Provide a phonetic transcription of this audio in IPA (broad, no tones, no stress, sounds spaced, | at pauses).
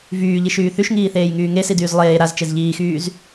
v yː ʎ i ʃ yː θ y ʃ ŋ iː θ eː j ŋ yː ŋ e s i d yː z lˠ eː ɾ a z t͡ʃ e z ʎ iː x yː z